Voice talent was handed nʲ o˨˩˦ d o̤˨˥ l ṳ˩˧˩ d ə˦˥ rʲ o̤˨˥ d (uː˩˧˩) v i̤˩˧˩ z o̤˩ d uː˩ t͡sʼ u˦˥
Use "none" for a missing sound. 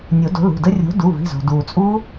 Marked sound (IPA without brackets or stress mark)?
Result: u˩˧˩